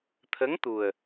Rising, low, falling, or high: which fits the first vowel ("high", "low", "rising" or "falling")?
rising